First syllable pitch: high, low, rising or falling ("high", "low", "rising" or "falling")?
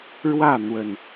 falling